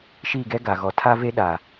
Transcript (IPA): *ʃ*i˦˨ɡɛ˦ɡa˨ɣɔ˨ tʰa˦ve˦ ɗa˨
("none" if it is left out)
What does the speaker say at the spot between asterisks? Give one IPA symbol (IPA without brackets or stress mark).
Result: ʃ